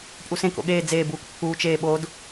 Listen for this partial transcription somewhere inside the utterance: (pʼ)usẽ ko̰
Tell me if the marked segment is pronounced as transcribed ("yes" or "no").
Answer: yes